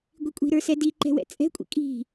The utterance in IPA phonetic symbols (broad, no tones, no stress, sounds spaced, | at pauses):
ɡʷ i kʷʼ i̤ ɾ ə˞ s ɛ d i ǃ ɛ̤ w ɛ̰ t͡sʼ ɛ̤ kʷʼ ḭ kʼ i̤